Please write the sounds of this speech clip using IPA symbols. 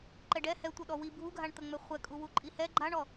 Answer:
ǃɛɖɛ hɛtʷə ɗɔwi bʱuɡʱaɳt̪əŋ͡mɛ χʷɛkʼu wuǃʼihɛ ɡ͡ǃaɳɔ

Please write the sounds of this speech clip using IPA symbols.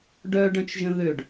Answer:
ɖœ ɖœ̃t͡ʃʒə̃ðøɖ

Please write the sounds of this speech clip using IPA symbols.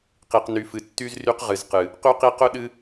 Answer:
qi˨qny˨fɨ˨ tːy˦z ry˦qʁɨ˨zqɨ˨ | qy˦qi˦ qʊ˦ ɗɨ˦

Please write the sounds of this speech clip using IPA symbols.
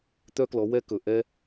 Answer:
t̪œ˥klɔ˨˦wɛ˥kɵ˨˩ ʔɛ˥

